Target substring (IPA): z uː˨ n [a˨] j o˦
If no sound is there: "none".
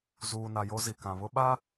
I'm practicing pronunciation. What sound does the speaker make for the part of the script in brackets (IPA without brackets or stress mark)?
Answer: a˨